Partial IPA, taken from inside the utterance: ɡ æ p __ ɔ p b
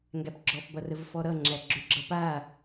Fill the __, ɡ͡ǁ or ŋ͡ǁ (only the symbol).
ɡ͡ǁ